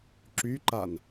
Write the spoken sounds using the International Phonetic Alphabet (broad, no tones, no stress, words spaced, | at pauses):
ǁyǃan